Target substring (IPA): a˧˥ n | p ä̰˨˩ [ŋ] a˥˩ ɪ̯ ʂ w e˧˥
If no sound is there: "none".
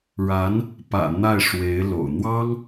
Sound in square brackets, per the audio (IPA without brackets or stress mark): n̪